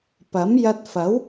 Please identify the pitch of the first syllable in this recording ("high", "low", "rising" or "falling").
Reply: rising